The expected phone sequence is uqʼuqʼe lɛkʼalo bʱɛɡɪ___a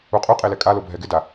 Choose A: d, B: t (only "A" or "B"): A